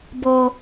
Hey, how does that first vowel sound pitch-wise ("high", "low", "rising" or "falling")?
high